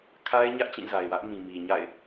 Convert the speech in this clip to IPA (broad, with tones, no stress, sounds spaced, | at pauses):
kʰ a˦ ɪ̯ ɲ ä˦ ʔ t͡ɕ ĩ˦˨ z a˨ ɪ̯ w ä˦ ʔ m ĩ˨ m i˨ ɲ a̰˦˨ ɪ̯